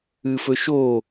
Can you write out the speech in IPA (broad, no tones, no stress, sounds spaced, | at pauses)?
ɨ f ɵ ʃ o